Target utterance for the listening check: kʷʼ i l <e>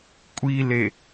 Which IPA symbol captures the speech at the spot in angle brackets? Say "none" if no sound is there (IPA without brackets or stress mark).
e